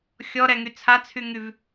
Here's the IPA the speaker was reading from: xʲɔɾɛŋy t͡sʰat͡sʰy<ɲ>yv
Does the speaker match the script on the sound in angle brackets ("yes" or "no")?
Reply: no